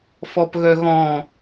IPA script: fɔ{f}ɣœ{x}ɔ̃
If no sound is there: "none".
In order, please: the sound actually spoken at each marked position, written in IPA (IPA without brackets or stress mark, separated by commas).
p, ɣ